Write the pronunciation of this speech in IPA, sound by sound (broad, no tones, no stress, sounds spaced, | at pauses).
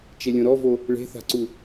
t͡ʃ e lʲ õ ɾ ɔ v o | ɭ e̤ θ a̤ ǀ u